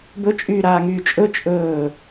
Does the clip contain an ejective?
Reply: yes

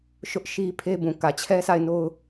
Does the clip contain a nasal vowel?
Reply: yes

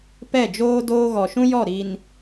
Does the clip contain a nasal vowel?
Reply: yes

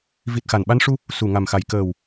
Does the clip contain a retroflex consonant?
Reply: yes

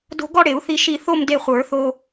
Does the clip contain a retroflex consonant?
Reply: yes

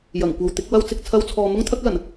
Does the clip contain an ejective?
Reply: no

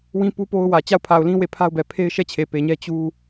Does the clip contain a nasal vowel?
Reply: yes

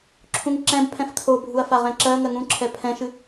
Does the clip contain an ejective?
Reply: no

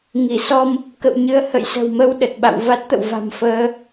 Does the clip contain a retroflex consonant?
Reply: no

